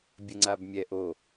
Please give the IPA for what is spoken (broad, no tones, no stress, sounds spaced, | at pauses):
bʲ ə ŋ͡ǀ a b mʲ ɛ ʔ o